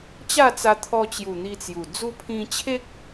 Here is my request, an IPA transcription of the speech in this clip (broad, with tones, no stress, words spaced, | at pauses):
t͡ɕa˥˧t͡sa˧t̪ʰɔ˧t͡ɕju˨˩ n̪i˧t͡sju˨˩ d͡zu˧pʰĩ˧t͡ɕʰe˦k̚